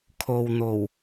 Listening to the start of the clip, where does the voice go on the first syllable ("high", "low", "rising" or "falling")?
low